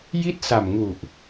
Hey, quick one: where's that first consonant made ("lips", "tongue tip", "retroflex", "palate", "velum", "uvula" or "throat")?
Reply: palate